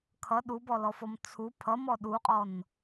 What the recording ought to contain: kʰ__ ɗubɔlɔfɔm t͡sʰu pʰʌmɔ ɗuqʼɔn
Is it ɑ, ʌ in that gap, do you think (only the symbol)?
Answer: ʌ